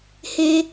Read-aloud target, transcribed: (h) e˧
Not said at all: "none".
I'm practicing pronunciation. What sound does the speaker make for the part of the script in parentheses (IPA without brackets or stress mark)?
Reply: h